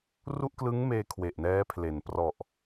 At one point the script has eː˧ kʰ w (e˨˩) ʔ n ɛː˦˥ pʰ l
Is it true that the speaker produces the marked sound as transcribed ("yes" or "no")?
yes